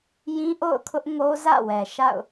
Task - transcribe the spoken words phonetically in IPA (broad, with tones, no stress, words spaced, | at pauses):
jĩ˦ ʔo̰˦˨ʊ̯kʰʊ˦ʔŋo˦ zä̰˦˨wɛ˨ʃa̰˦˨ʊ̯